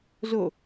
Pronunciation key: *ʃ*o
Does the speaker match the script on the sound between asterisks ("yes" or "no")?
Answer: no